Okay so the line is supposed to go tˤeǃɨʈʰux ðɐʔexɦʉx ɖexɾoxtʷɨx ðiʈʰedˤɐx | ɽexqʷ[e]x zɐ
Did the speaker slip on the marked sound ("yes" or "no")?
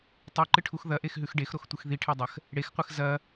yes